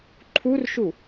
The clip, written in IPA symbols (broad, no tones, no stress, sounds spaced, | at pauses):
ǃʰ u r ʃ u